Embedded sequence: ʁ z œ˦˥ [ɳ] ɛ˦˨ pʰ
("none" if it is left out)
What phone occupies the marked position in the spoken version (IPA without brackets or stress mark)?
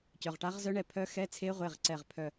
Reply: ɳ